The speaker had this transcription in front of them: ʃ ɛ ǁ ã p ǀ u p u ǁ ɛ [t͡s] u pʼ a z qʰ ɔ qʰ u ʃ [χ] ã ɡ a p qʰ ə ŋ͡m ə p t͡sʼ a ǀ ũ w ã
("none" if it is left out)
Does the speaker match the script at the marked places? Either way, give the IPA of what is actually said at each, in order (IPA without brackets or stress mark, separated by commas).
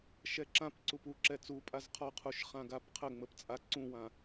t͡s, χ